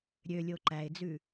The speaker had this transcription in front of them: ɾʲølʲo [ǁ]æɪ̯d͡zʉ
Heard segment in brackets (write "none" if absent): ǃ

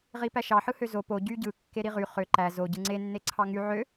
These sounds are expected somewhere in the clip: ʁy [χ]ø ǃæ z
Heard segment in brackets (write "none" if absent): χ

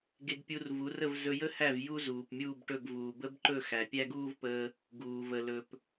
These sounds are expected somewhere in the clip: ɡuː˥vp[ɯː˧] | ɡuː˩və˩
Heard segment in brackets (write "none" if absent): əː˧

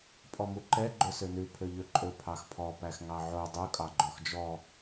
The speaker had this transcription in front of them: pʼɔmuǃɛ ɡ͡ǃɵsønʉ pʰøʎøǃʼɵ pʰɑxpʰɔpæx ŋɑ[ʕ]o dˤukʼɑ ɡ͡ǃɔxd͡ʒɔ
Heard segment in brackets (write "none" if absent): ʕ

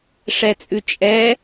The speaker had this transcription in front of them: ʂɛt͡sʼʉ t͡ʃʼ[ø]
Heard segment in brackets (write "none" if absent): ɛ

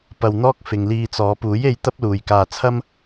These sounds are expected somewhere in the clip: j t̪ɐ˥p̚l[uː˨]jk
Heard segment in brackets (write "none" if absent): uː˨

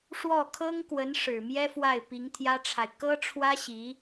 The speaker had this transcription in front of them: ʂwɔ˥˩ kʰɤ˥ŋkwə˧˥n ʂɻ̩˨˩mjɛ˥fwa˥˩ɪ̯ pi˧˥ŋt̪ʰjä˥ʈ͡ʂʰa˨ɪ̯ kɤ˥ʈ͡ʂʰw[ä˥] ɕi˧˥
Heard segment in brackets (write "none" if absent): ä˥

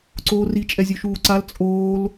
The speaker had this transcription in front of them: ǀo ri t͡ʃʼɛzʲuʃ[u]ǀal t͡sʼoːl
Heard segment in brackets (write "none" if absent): uː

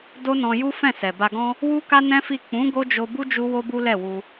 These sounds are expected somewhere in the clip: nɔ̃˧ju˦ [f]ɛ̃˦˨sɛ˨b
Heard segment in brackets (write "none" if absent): f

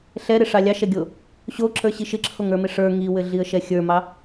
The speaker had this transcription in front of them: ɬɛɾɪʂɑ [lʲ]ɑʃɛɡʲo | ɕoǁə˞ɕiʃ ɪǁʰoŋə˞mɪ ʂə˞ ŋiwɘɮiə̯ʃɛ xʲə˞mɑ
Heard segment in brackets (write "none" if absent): lʲ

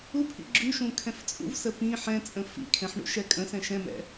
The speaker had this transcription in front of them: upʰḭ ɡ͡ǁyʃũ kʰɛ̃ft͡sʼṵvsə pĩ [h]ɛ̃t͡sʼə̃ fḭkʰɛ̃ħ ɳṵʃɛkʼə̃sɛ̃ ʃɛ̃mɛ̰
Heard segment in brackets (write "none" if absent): ħ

